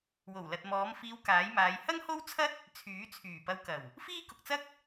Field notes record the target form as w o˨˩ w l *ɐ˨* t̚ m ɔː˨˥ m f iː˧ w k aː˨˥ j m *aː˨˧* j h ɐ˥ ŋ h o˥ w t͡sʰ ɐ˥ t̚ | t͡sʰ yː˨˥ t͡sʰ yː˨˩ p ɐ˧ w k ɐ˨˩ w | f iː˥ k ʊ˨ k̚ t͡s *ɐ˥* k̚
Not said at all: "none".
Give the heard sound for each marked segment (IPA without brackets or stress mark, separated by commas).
ɐ˨, aː˨˧, ɐ˥